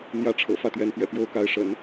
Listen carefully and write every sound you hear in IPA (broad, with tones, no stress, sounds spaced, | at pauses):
n̪ j ä˥˩ ʈ͡ʂʰ ɤ̰˨˩ f ä˥˩ t̪ ɥ ɛ˧˥ n p ɥ ɛ̰˨˩ p j o˥ ʊ̯ k a˧˥ ɪ̯ ʂ ə̰˨˩˦ n